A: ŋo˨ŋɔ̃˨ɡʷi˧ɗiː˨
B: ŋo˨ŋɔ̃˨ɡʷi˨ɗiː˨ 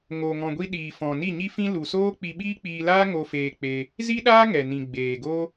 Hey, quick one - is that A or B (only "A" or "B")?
A